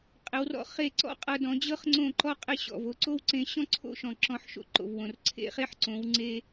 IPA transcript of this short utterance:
qʼ ɪ˩˥ w r ɔ̰˧ χ e˥˩ ǀ ɔ̰˥ qʼ ɤ˧ d ɔ̃˩˥ d͡ʑ ɤ˥ χ ŋ͡ǀ õ˥˩ ǃ ɔ˥ qʼ ɪ˥˩ ɕ ɔ̰˩ v o˧ ǀ o˥ w ǀ ẽ˩˥ ɕ ɔ̃˥ ǀʰ o̰˥˩ ʃ ɔ̃˩ ǁ ɔ̃˧ ħ ʃ o̰˥ ǃ o̰˩ v w õ˩ r ǀʰ ḛ˥ χ e˥ ħ ǀ õ˩˥ w ŋ͡ǀ e˧

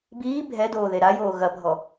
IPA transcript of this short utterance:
b iː bʱ ɛ d oː ð e ɾ a j oː ɣ ɐ bʱ ɔ

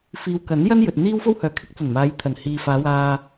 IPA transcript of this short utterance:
f iː˨ w k ɐ˨˥ n j ɐ˥ n j ɵ˨ t̚ n̪ iː˥ w f o˥ w h œː˨ kʰ ɪ˥ k̚ t͡s ɐ˨˩ n m aː˨˧ j t̪ʰ ɐ˨˩ n h iː˨ f aː˨˧ w aː˨

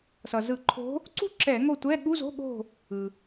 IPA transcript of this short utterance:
s ʌ˩ z ɯ˧˩˧ ǃʰ o̤˧˥ | ǀ ṳ˦˨ ǁ ɛ˧˩˧ ŋ o˦˨ tʷ ɛ˧˥˧ ɠ u˧˥˧ z o̤˧˥˧ ɠ o̤˦˨ | ɯ˩

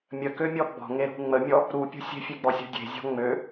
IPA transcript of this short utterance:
mʲ ə k ø mʲ ɔ ɡ͡b ɔ̤ ŋ e ɾ ṳ ŋ͡m ə mʲ ɔ | ɾ u pʲ ṳ sʲ e̤ fʲ e ɡ͡b ɔ sʲ ṳ dʲ e̤ zʲ ɔ̤ ŋ͡m ø

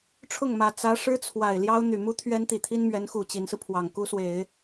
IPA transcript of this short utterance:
ʈ͡ʂʰ ʊ˥˩ ŋ m ä˨˩ t͡s ä˧˥ ʂ ɻ̩˥ t͡sʰ w a˨˩ ɪ̯ l j ɑ˥ ʊ̯ n̪ y˨˩ m u˥ t̪ʰ ɥ ɛ˥ n t̪ i˨˩ t̪ʰ i˥ n m ɥ ɛ˧˥ n x u˨˩ t͡ɕ i˧˥ n s ɹ̩˧ pʰ w ɑ˨˩ ŋ k u˥ s w e˨˩˦ ɪ̯

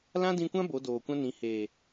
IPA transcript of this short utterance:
l ã˦ d ĩ˧ kʷ ã˦ b o˨˦ d oː˨ kʷ ã˦ n ĩ˨˦ h eː˨

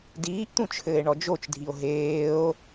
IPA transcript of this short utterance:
d iː ʔ t̪ ũ t͡ʃʰ ɘː e̯ ɳ ɔ d͡ʒ o t͡ʃ dʱ i o̯ ɦ eː o̯

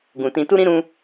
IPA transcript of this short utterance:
ɡ ũ˨ t ĩ˧ t u˦ ɾ ĩ˦ ɾ ũ˦

